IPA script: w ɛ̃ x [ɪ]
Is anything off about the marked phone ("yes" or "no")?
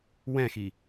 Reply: yes